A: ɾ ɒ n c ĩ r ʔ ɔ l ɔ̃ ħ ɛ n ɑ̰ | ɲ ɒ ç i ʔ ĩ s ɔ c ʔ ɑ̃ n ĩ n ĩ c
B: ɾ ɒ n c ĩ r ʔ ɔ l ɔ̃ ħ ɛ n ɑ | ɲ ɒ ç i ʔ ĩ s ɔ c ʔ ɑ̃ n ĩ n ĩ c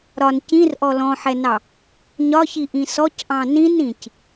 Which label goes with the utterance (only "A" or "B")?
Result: B